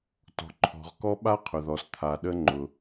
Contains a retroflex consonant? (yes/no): no